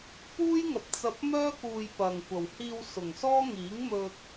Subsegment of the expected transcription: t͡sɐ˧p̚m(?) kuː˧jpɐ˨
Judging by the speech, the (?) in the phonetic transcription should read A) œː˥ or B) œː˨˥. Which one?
A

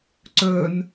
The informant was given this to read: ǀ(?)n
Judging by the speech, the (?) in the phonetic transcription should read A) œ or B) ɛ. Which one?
A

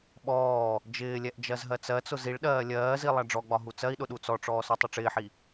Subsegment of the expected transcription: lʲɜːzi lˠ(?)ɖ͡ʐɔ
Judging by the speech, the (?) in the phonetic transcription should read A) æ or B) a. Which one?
A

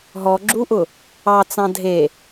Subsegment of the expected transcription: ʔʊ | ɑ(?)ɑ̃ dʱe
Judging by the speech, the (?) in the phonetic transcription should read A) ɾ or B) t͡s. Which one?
B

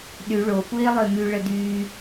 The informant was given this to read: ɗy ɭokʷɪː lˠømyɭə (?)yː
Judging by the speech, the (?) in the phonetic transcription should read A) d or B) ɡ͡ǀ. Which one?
A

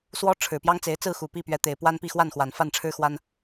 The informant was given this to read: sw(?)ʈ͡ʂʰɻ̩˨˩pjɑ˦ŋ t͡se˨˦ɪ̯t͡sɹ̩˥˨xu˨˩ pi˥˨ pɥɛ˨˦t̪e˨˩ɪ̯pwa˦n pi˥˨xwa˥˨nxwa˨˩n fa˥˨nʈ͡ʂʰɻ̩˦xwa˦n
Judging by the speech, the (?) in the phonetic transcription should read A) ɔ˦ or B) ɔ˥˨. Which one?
A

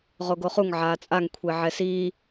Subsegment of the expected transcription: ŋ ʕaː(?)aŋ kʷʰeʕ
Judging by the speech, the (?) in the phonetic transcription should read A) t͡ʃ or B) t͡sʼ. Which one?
B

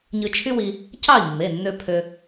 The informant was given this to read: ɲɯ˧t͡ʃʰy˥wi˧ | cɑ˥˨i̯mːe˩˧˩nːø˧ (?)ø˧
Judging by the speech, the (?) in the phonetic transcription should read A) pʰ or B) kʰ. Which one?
A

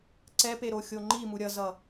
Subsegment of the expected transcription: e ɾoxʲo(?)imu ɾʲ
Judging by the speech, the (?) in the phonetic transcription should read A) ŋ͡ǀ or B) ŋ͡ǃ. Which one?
B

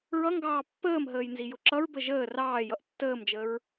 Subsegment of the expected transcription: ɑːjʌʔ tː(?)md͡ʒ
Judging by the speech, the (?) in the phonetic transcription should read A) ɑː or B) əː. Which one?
B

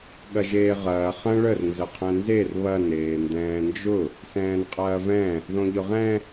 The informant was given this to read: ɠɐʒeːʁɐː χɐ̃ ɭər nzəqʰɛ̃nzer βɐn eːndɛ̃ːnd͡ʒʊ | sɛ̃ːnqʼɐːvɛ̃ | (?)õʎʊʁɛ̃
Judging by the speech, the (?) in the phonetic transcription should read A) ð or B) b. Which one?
A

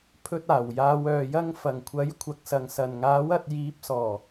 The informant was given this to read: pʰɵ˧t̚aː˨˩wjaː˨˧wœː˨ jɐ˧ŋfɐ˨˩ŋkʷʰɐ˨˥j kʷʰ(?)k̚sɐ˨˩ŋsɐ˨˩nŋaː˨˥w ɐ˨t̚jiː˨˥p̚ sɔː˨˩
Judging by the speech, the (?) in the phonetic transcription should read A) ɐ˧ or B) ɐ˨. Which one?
B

